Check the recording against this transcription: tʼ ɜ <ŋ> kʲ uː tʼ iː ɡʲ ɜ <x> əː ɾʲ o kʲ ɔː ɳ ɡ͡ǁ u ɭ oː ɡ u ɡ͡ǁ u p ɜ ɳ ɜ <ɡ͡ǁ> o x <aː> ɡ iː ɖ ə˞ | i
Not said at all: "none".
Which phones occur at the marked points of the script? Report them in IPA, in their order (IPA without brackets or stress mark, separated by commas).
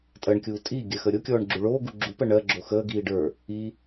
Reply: ɳ, x, ɡ͡ǁ, əː